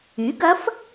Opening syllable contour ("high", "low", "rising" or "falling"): rising